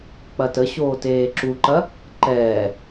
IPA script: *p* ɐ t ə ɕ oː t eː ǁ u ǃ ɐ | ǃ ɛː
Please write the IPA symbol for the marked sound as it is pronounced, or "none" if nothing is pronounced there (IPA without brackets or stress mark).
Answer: k͡p